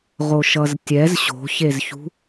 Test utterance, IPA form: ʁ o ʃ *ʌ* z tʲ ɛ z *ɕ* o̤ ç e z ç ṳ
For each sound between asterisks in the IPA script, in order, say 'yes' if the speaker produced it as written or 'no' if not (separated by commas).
yes, yes